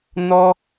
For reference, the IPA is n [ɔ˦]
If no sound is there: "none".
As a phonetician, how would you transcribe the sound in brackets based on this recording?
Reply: ɔ˦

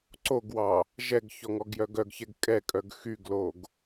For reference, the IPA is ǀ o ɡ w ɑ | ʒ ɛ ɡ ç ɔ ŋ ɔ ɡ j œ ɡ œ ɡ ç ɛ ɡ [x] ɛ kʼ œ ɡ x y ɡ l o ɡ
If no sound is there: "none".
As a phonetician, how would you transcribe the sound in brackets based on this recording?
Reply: kʼ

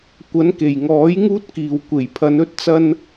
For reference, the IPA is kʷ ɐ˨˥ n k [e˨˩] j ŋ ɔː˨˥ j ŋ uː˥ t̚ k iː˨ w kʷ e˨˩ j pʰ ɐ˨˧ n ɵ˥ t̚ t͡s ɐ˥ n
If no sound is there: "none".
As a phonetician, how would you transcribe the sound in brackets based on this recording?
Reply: e˨˩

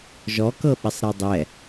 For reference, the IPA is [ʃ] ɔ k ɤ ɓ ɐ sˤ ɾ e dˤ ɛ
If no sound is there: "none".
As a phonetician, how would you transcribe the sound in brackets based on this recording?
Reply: ʒ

